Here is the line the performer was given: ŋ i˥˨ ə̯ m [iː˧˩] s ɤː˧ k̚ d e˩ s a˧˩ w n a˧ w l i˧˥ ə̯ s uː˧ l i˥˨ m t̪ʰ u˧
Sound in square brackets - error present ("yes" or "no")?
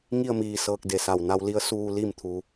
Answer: no